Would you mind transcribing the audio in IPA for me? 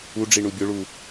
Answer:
uɖ͡ʐi ɳubʲʊɭu

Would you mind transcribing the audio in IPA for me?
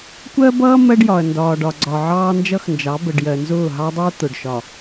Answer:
kʷɜ˦bʌː˦ mɜ˦ɖjɒ˨ɐ̯ ndɒː˨ɖɒ˨ɡ͡ǀɒ˨ ʕɑː˦nd͡ʒʌ˦xnd͡ʒɑ˨˦ bə˨ɖjɜ˨nzʊː˦˨ ɦɑ˦dˤʊː˦ t̪ʊ˨ɖ ʃɒ˨

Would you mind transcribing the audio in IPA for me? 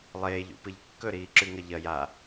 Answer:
lˠeːʎṵpɨʎ kːɵɾiːǁʉŋɐ ʎɐ ja

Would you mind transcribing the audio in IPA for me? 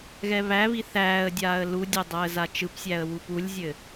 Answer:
ɣɛβæβi θæːə̯dʲaːə̯ ludʲe dˤæə̯zat͡ʃɯpsʲæə̯ wupulʲzʲɘ

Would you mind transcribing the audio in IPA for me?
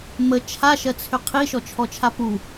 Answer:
mə t͡ʃʰaʃɜt͡sʰʏ qʰiʃɔt͡ʃʰɔt͡ʃʰa pu

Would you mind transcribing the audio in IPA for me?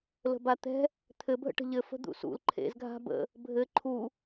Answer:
lə̤bat̪ɛ̤ | t̪ʰɘbʱə̰ʈə̤ ʎɘ fə̤d̪ṵsṵl ǃʰḛzɡʱa̤ bə̰ | bʱɘ ǃʰu

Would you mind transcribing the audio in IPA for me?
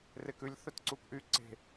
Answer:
rekʉlʲ θœtǀukʔy ǀe̤

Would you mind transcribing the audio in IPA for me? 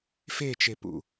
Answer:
fet͡ʃepṵ

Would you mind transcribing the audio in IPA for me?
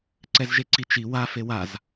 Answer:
ǀɛzʒeǀi t͡ʃi wa fewaz

